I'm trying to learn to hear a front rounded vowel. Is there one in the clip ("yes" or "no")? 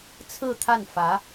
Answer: no